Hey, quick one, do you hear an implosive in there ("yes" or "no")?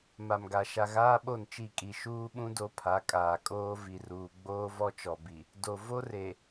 yes